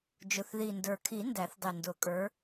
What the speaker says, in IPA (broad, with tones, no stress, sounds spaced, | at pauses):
d͡ʒ ʊ˨˩ θ ð i˨˩ n d ə˞˨˩ kʰ i˨˩˦ n d æ˨˩˦ θ dˤ i˨˩ n d ʊ˨˩˦ kʼ ə˞˨˦